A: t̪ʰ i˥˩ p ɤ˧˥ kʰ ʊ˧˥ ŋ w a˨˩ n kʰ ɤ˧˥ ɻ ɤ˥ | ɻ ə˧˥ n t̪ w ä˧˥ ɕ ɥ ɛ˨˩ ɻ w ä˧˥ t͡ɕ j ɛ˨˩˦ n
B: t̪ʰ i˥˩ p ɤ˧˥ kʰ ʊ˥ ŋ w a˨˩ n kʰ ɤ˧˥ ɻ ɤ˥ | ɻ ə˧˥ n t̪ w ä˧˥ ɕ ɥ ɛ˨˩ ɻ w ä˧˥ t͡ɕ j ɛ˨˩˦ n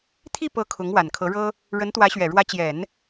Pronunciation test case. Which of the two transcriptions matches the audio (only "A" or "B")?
A